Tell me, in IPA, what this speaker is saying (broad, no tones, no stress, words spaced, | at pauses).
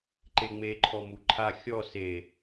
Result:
ǃeŋ͡me ǃʰɔmuǃʰa xʲɔ se